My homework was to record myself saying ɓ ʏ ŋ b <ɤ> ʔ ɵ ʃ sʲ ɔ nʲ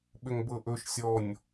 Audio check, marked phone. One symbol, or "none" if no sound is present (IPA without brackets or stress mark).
ɤ